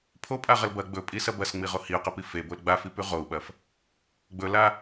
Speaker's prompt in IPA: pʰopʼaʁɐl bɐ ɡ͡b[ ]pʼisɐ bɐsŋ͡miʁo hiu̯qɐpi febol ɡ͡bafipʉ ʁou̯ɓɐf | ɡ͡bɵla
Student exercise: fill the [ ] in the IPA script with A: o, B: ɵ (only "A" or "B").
B